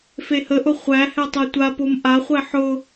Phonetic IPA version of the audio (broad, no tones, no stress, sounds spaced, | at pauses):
f e h ə ʔ ʊ χʷ æ h ɛ tˤ e tʷ a p o m ʔ a χʷ ɛ ħ ʊ